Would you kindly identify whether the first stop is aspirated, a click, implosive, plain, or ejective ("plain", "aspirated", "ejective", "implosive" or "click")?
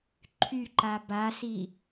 click